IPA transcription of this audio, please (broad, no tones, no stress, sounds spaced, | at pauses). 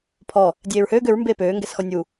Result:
pʰ ɔ | dʲ eː ɹ h øː ɡ ø ɹ m b eː p øː ŋ ɡ ɛ s x ɔ nʲ u